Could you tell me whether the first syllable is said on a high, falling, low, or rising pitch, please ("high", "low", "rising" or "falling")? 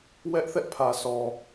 high